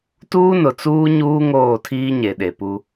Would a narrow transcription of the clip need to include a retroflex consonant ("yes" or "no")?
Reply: no